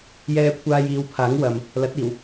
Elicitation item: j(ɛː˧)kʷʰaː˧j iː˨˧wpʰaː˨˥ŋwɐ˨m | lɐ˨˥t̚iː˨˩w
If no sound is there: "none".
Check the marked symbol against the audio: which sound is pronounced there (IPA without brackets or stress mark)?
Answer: ɛː˧